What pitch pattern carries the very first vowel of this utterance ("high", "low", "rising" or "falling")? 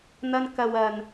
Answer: high